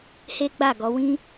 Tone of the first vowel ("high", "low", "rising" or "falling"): high